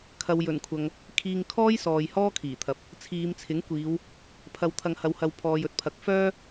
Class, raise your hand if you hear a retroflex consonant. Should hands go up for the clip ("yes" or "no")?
no